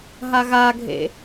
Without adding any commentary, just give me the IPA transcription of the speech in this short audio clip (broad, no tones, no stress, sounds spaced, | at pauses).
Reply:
ɦ a ɣ a ɡʱ ḛ